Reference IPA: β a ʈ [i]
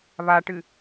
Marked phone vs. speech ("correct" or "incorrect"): incorrect